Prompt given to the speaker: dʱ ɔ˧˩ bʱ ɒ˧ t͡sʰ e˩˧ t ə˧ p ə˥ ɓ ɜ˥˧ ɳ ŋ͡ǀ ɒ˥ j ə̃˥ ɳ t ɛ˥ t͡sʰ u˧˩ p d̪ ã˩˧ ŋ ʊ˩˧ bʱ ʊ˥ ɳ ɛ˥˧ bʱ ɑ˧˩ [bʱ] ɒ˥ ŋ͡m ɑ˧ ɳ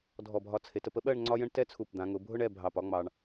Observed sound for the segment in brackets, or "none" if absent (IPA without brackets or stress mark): p